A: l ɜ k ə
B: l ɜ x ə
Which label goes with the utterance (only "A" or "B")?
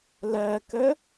A